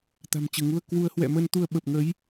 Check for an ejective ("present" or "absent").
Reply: absent